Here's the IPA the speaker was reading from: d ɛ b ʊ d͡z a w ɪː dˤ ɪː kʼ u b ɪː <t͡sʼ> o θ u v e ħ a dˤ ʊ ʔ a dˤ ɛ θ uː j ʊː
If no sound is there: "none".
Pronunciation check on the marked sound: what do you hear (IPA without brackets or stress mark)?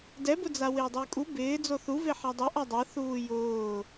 d͡z